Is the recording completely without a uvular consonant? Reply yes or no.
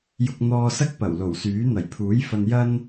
yes